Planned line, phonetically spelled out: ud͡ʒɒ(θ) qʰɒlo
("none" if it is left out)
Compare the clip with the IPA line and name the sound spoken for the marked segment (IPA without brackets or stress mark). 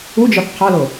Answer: θ